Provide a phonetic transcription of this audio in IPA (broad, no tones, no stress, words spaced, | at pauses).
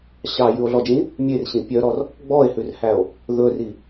ɕɑjʉo̯ɮɔd͡ʒĩ | mʲerɕĩ pʲœɾɔr | ɡ͡bɔe̯hʉrhæo̯ | ðɵri